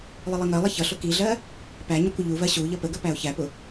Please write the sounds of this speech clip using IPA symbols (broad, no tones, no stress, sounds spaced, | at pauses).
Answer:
lˠ ɪ lˠ i ŋ ɜ lˠ ɪ ç ʌ ɬ ʊ k i ɮ ɜ | p æ ɲ ə kʷ ə ʎ u v ɜ ɕ u ʎ ʌ p ə ɡ ə p æ ʊ̯ ç æ p ʊ